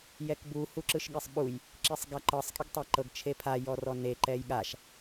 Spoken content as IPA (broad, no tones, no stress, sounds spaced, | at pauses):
j ɛ k b u h u ǁ ɯ ʃ ɠ e sˤ ɓ u j | ǁ i sˤ ɡ a ǃ ɤ sˤ kʼ i ɡ tˤ a ǃ ɤ ɡ t͡ʃʰ e pʰ a j ɔ r ɔ n e ǃ ɛ j ɠ a ʃ